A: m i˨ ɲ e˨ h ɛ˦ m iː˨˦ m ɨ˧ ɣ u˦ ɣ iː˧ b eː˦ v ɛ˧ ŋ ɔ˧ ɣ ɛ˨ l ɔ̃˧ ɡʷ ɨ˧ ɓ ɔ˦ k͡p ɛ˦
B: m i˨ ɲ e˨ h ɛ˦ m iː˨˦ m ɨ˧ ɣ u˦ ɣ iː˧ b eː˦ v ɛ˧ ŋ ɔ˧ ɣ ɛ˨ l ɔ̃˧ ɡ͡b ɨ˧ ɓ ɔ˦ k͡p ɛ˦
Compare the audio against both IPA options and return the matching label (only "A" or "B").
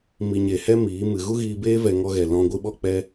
A